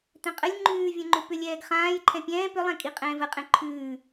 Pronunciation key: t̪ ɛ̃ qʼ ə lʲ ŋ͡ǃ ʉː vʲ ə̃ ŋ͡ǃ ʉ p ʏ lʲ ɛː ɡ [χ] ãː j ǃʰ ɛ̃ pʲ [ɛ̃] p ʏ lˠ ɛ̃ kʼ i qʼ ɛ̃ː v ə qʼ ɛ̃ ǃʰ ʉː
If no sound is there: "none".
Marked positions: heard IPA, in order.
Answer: χ, ɛ̃ː

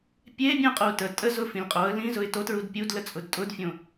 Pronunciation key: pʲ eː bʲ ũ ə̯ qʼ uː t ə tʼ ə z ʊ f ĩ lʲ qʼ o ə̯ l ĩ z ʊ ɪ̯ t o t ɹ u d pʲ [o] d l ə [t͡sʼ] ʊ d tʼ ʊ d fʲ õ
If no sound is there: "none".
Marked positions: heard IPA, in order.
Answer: u, t͡sʼ

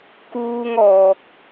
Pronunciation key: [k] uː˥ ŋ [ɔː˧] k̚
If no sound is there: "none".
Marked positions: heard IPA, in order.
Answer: k, ɔː˧

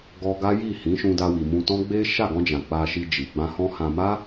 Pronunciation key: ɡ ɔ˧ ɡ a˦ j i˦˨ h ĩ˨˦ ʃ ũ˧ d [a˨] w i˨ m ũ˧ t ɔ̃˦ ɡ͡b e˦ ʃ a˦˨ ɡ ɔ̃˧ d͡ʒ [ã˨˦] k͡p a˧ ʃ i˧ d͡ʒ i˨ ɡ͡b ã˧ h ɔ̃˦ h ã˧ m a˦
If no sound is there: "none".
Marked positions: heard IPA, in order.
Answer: a˧, ã˨

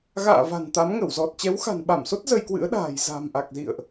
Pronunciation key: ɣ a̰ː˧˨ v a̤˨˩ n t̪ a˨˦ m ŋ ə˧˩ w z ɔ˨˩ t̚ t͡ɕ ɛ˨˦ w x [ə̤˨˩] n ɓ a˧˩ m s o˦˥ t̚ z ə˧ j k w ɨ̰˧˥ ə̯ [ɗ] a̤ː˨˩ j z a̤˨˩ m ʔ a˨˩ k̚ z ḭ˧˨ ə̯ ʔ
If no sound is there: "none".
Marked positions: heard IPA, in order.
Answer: a̤˨˩, ɗ

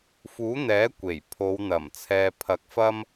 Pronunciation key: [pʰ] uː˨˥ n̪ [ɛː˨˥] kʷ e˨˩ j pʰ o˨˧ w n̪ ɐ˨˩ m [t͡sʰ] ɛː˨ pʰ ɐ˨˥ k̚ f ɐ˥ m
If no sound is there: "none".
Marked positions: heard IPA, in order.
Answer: f, ɛː˨˥, t͡sʰ

